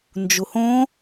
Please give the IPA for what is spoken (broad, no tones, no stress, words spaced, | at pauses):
nd͡ʒuhõ